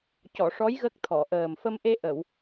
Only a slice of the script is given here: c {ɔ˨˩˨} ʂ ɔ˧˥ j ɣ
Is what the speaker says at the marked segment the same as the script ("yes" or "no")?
yes